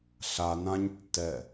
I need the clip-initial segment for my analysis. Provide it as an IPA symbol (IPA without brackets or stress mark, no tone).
ɬ